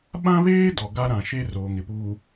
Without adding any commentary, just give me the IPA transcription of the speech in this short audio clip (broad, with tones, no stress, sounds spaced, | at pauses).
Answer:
ɓ ã˦ β eː˦ d ɔ˨ ɡ a˦ ɾ ã˨ ʃ e˦ r oː˨ ŋ ɪ˨ p uː˨